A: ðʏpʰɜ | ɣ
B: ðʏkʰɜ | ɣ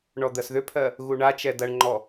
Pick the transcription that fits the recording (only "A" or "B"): A